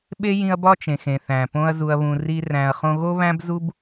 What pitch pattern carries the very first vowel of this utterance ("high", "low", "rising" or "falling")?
high